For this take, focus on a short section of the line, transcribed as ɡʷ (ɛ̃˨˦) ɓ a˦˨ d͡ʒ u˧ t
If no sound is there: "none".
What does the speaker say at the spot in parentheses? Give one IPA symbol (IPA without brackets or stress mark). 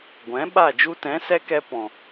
ɛ̃˨˦